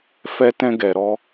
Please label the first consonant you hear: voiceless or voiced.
voiceless